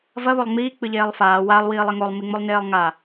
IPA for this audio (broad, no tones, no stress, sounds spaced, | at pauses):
v ɐ β o lˠ ŋ͡m iː k͡p ɨ ʎ eː lˠ f aː w a lˠ w iː lˠ e ŋ o lˠ m i ŋ͡m o lˠ n eː lˠ ŋ a